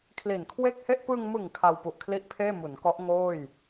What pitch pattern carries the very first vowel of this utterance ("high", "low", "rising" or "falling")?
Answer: low